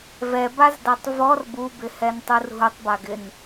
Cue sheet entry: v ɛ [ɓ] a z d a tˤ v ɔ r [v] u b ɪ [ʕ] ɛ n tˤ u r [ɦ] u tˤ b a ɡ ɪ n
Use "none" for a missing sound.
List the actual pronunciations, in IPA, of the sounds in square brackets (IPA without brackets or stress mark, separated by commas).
b, b, h, ɦ